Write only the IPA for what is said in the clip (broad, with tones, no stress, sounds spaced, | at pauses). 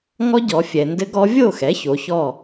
ŋ ɔ˦˥ ɟ ɔ˩˧ fʲ ɛ˩ n d ɘ˦˥ ɡ ɔ˦˥ vʲ o˥˨ x ɛ˩˥ ç o˩˧ ç ɔ˥˨